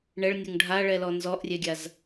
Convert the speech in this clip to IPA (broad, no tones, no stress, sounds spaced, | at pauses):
ɳ ɛ ɭ nʲ o ŋ ɖʱ a ɭ ɛ l ɔ n z ɔ ʔ rʲ ɛ ɡʲ a z